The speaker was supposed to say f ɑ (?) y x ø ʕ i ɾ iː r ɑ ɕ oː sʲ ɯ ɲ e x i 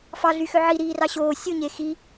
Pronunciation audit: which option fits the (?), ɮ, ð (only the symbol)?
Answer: ɮ